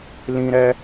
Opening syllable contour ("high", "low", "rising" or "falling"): high